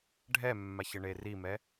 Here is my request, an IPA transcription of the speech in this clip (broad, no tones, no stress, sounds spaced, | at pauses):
ɖʱ ɛ mː a ç ɘ ɳ e r i m ɛ